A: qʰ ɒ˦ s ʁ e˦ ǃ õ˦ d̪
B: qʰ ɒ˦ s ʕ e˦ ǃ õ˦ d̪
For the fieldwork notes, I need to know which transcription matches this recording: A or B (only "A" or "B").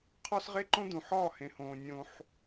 A